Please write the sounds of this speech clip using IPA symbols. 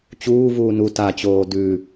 t͡ɕuːvuː nu tat͡ɕoː dʉ

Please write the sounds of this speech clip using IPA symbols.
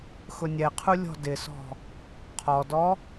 xʊnʲɛqʰu lʲɔ̤dɪsɔ̤ | qʰɔdɔ

